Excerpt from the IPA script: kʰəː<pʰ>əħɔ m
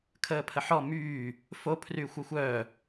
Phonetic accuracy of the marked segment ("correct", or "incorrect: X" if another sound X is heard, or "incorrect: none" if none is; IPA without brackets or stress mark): correct